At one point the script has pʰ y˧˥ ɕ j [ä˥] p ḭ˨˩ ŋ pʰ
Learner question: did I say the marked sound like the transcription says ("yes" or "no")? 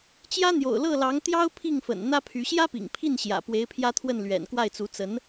yes